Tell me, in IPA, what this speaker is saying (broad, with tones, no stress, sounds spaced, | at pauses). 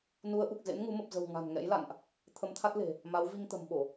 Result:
n u˨˦ ə̯ ʔ u˨˩ k̚ z ḛ˧˥ n ŋ u˨˦ m ə˨˩ p̚ z ə̤˨˩ w ŋ a̤˨˩ n ŋ ɛ̰˧˥ j l a̰˧˨ n ʔ | t̪ʰ ə˨˦ m t̪ʰ a˦˥ t̚ l e̤˨˩ | m a˨˦ w v i˧ ŋ t̪ ə̤˨˩ m ɓ o˧˩˨